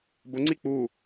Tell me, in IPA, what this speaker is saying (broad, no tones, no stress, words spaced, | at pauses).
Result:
bʊŋ͡ǀi k͡pu